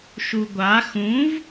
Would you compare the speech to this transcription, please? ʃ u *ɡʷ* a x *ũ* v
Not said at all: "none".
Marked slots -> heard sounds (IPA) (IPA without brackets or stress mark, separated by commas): ɡʷ, ũ